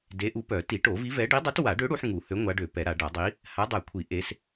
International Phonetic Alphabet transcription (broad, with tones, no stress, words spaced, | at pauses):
de˨˥ʔu˨˥pœ˨˩˦ ti˨˩˦ʈo˨˩˦vi˨˥vɛ˨˥ ɖi˨˥dˤø˨˥twa˨˩˦ɖø˨˥ ɽu˨˥ħ ŋu˨˩˦hø˨˥ ŋʷa˨˥ɖø˨˩˦pɛ˨˩˦ɾa˨˩˦ ɖa˨˩˦dˤi˨˥ | ha˨˥dˤɛ˨˩˦kʷʰi˨˩˦ ʔe˨˥s